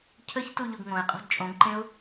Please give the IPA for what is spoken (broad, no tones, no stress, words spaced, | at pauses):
cʰəçtu ʎoɡŋõɪ̯qʼo̤d t͡ʃʼõɡǃẽʊ̯